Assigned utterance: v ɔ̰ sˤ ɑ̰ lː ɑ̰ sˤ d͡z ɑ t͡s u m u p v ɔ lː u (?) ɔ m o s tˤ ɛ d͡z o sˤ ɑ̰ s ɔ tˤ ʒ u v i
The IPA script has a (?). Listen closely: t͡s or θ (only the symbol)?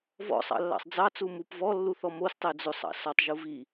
θ